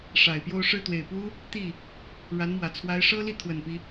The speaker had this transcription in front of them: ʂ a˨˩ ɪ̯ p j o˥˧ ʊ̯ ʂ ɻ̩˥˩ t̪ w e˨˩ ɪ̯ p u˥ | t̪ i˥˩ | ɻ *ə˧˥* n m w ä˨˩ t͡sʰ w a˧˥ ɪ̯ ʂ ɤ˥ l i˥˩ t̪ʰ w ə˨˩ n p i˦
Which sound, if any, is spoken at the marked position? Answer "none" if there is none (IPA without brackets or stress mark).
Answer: a˧˥